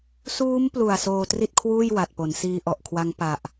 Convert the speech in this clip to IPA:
suː˦˥mplu˨˩a̯ soː˧tri˥˩t̚kʰwuː˥˩j wa˨˩t̚po˩˦n siː˧ʔɔ˨˩ʔkʰwa˦˥ŋ pa˨˩ʔ

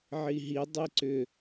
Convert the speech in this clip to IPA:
ʕiɦi dˤiǀʏ

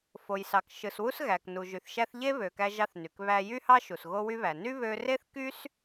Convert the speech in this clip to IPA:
fo˩jsɑ˩k ʃɯ˩swu˧sɣæ˩k nu˩ʒy˩θʃæ˧θ ʎe˥βø˩kæ˧ʒɑ˧θ ny˩kβæ˧ jy˥hɑ˥ʃu˩s ɣo˧wy˧βæ˩ ny˥βø˧ re˥θ ky˥s

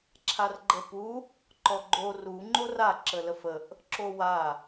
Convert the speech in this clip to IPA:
ǁʰarɡ͡ǃəpu | ǃɔɡ͡ǃo ru ŋ͡ǃora ǁələfəʔ | ǁowa

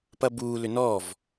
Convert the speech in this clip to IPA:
pɐbuː lʏnɔːv

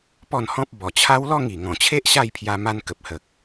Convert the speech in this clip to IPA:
pɔ˥˧nhɔ̃˦p̚ bɔ˨˩t͡ɕʰa˦wlɔ˥˧ŋ i˨˩ ŋɔ̃˨˩t͡ɕʰe˦ʔ ɕa˥˧jpʰja˧ ma˧nkə˨p̚hə˨k̚

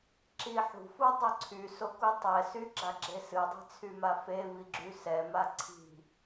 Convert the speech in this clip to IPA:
ǁiħṳfu dˤœǀʰyso kutˤɛsy ɡ͡ǁaɡ͡ǁesɨdˤi̤ t͡sʰymafevi ɡ͡ǁysɛma ǀʰi̤

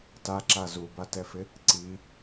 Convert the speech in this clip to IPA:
taǁa zubatɛfɪ | ǀi

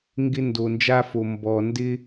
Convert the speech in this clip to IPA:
ŋɡɪ˦ ndo˨nd͡ʒa˦fo˨ mbɔ˨ ndɪ˦

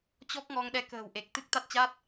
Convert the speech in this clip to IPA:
t͡ɕɔ˦˥k̚ŋɔ˧ŋɗɛ˧ kə̤ː˨˩wʔe˨˩k̚ t̪ɨ˦˥k̚t̪a˦˥t̚t͡ɕa˦˥t̚

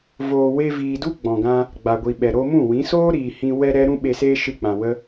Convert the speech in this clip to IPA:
voː˨we˧viː˨du˦ ɡ͡bɔ̃˨ɡã˧ | ɡ͡ba˨ɡʷi˨ɓɛ˨ɾo˧ mũ˦˨wĩ˨˦ soː˦ ɾiː˨hĩ˧ wɛ˧ ɾɛ˦ɾũ˦ ɓe˧seː˦ ʃɨ˦˨k͡pã˨wə˦

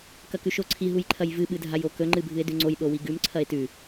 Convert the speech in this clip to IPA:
kɐkʉʃoǀʰi ɦujǃʰɐjvɨ ɓɨdʱajokɵ ŋ͡ǃɨbʱɨe̯dʉŋ͡ǀoj ɗowiɡʉm ǀʰɐe̯tʉ

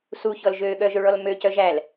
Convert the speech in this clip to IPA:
suçɔl ʒøɠœʒøɭɔl mø cœʒæl

